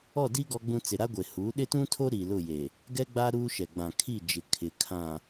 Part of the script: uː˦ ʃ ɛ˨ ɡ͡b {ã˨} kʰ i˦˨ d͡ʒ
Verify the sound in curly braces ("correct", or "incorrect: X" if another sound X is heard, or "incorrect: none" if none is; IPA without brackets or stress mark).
correct